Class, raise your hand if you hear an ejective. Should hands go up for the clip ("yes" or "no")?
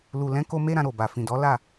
no